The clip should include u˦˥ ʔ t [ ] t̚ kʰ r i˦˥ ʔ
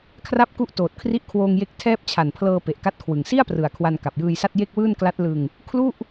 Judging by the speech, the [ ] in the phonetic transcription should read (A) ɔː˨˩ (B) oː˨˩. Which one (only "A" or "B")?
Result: B